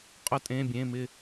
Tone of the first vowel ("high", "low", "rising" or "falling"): rising